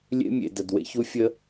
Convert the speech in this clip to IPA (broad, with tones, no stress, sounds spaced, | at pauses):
lʲ ḛ˥ mʲ ḛ˩ d ə˩ d w ḛ˥ ç u˥ fʲ ə˥